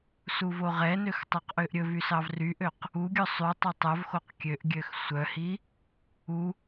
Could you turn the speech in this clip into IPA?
s u v o ʁ ɛ n ø x tˤ u q ʔ ø ʔ ɾʲ ɵ v y s ɑ v r y ʔ ø q | u ɡʲ ɵ sˤ y tˤ œ tˤ œ v x o q kʲ ø ʔ ɡʲ ø x sʷ œ h i | u

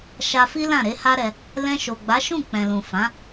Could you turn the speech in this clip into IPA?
ʃ a˧ f i˦ l ã˦˨ ɾ e˨˦ h a˦ ɾ ɛ˧ | l ɛ̃˧ ʃ o˨ ɡ͡b a˨˦ ʃ ũ˦˨ k͡p ɛ̃˨ l ũ˨ f ã˨˦

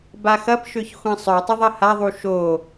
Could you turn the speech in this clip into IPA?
b a x ɐ p ʃ ø ç xʷ ɛ̃ sˤ œ tˤ ʊ ðˤ ɐ h a ðˤ u ʃ o

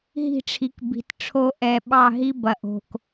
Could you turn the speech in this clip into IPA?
ɦ i̤˦˨ ʈ͡ʂʰ i˨ k b i̤˨ t ʈ͡ʂʰ o˦ ʔ ɛ˨ ɓ ɑ˦˨ ɦ i˦ b ɐ˨ ʔ o̤˨ k

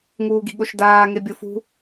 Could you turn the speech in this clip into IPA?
ŋ uː ɡ i̤ ɠ o ʃ d aː ŋ e bʲ o f ṳ

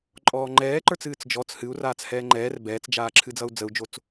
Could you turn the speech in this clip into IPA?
ǃʼ ɔː ŋ͡ǃ ɛː ǃ ə˞ t͡s ɨː t͡s d͡ʒ ɔ t͡s h ɨ u̯ r aː t͡s h ɛː ŋ͡ǃ ɛː r b ɛː t͡s d͡ʒ aː ǁʰ ɨ d͡z ʌ u̯ d͡z ə u̯ d͡ʒ o t͡s

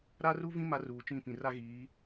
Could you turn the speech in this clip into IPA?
ɾ a˦ r u˦ v ĩ˦ m a˦ r uː˨ t͡ʃ ĩ˦˨ p ĩ˨ r a˦ ɣ iː˨˦

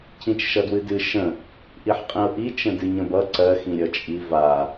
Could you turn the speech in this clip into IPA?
cʰ ĩ t͡ʃ ʃ ʌ d w ɨ d ɨ ʃ ə̃ | ʔ i ħ qʼ ĩ ʊ̯ ʔ i t͡ʃ ə̃ d ɨ ɲ ə̃ b ʌ ǀ ɜ x ĩ ɾʲ ʌ t͡ʃʼ i v a

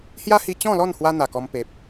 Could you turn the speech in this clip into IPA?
h j a˦ h i˧ t͡ɕ ɔ̃˥˧ l ɔ˥˧ n h w a˧ n̪ a˨˩ k ɔ˧ m p e˨ p̚

